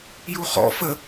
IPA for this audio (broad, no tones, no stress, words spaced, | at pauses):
juχɔ̰ fə